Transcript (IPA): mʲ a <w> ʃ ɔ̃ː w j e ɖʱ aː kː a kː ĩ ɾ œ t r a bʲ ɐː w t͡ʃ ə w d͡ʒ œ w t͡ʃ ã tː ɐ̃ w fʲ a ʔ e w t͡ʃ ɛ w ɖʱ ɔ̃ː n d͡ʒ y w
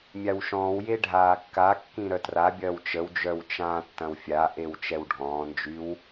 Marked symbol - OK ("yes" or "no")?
yes